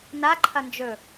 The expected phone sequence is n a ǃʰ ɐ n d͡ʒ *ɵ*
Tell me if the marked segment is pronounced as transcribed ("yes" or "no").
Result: yes